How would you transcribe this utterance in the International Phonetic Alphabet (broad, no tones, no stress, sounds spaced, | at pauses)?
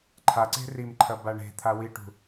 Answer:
ǃʰ a ǀ e̤ r i m ǃʰ ɐ b a ɳ e̤ t̪ʰ a w i ʈ ṳ